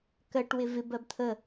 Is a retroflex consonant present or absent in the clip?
present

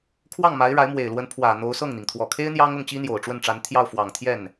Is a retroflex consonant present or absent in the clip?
present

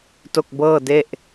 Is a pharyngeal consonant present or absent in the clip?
absent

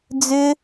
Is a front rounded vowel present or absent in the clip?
present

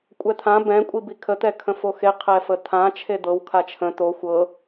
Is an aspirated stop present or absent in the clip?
present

